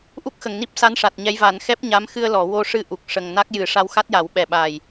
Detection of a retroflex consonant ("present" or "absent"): present